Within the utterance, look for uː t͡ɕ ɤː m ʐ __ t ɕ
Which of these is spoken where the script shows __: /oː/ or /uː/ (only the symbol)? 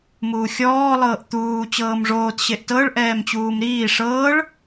oː